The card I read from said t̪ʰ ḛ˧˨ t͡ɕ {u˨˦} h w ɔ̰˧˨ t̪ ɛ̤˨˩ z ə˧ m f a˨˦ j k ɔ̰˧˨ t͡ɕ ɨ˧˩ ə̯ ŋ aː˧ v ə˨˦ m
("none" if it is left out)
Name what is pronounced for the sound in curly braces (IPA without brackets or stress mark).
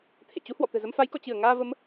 u˨˦